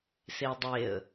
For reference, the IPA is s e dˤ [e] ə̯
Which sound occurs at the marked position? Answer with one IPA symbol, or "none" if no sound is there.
e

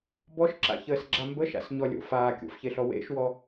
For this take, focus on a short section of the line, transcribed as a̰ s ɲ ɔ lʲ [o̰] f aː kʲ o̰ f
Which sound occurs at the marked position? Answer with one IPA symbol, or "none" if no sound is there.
o̰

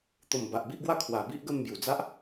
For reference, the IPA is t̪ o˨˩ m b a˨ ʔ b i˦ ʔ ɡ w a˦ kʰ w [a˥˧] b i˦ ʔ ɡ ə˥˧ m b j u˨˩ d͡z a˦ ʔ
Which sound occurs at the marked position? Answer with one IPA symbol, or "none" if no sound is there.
a˨˩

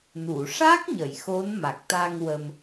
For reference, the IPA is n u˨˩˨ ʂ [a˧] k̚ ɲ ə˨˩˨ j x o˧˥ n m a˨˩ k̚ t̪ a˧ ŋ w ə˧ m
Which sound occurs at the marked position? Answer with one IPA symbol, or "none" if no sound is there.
a˦˥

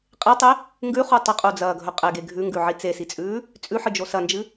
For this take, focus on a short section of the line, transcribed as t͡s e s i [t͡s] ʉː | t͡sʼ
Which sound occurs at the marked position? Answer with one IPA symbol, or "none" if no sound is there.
t͡sʼ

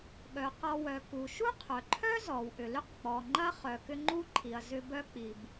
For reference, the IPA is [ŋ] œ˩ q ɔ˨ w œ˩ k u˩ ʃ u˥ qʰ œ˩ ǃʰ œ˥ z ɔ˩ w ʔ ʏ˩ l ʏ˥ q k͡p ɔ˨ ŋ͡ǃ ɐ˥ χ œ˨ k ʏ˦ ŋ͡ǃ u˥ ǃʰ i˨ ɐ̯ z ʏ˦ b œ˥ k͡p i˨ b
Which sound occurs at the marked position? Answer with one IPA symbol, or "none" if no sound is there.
ɠ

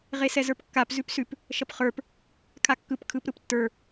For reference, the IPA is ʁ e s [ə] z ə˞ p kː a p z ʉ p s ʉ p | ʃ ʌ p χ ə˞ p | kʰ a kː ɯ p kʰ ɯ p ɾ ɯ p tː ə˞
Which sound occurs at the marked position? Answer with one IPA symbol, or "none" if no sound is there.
ɛ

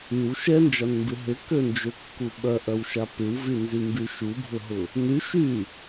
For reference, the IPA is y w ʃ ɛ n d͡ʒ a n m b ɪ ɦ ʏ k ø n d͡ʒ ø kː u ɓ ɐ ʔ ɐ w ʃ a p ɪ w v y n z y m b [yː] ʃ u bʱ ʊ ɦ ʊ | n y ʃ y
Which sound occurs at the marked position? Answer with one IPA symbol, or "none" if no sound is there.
y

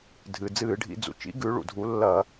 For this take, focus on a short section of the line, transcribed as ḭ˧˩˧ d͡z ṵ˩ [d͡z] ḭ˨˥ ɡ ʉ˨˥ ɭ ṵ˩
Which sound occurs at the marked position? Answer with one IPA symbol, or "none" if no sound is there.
t͡ʃ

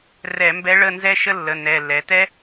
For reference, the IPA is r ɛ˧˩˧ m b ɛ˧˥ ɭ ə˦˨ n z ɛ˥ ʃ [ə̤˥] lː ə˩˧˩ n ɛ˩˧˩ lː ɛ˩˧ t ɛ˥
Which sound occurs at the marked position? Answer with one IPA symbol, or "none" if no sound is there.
ə˥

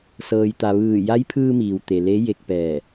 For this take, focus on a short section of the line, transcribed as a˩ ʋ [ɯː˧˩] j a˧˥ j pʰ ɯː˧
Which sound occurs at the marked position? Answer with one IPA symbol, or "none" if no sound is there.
ɯː˧˩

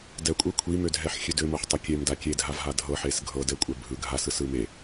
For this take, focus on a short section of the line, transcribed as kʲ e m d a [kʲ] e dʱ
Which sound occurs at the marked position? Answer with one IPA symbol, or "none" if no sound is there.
kʲ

